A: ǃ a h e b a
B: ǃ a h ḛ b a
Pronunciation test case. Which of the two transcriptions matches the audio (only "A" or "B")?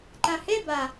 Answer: A